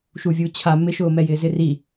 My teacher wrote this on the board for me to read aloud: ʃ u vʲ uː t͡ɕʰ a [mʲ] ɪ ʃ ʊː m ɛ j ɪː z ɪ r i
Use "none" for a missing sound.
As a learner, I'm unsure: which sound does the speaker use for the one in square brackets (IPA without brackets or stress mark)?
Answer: m